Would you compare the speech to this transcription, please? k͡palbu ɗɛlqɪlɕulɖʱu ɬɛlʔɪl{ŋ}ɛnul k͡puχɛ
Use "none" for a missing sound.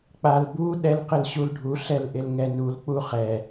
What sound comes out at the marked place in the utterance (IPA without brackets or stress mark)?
ŋ